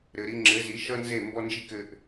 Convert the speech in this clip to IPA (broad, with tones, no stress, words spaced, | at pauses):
ɾɘ˧ ɾi˧ŋ͡ǁɘ˨˦zi˨˦ ʃʌ˦nze˦˨ mbɔ˦nd͡ʒi˦kɘ˧ʔ